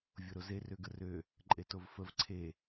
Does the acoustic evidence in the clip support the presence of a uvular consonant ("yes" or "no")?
no